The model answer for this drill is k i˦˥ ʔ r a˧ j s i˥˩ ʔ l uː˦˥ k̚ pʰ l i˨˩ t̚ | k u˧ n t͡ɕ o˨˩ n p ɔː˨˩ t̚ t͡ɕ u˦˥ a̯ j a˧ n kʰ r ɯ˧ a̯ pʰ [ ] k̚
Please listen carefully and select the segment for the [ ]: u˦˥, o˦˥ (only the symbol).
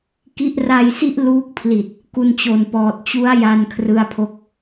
o˦˥